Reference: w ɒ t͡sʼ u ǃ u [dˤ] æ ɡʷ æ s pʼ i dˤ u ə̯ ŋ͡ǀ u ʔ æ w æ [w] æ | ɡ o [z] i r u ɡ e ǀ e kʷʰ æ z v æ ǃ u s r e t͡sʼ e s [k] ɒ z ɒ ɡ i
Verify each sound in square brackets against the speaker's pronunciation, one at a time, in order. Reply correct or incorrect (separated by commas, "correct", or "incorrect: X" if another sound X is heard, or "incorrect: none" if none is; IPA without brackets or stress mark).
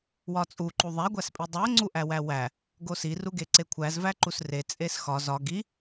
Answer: incorrect: ðˤ, correct, incorrect: s, incorrect: x